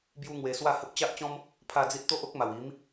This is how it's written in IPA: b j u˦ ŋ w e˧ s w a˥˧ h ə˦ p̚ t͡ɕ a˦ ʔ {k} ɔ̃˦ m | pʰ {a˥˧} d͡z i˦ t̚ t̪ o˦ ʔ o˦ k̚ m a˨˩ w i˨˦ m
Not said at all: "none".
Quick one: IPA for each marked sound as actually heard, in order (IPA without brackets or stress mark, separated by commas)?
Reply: t͡ɕ, a˥˧